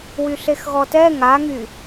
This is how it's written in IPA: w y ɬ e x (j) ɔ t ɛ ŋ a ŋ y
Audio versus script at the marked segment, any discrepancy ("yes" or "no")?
yes